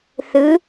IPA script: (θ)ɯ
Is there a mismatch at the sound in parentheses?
no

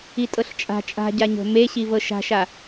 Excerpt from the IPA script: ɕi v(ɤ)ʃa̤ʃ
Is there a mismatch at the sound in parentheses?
no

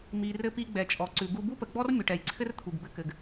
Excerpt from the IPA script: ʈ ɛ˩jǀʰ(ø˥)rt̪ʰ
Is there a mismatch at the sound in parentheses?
yes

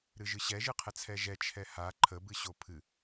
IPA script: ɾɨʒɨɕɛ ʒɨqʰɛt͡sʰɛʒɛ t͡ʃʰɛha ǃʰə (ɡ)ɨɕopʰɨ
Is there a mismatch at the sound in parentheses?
yes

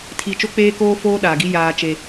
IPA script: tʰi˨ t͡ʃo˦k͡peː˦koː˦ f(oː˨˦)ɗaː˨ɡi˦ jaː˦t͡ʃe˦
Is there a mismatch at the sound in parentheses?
yes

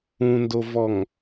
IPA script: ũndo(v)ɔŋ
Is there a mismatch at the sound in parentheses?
no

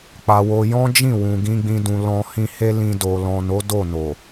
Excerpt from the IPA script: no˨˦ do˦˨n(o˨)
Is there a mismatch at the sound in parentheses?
no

